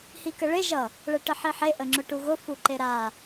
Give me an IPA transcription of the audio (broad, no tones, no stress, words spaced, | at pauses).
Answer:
hikəɭe ʒʌ | ɭɛʈəħiħe ʔəŋ͡ǁʊʈuɣʊ fuǃeɾa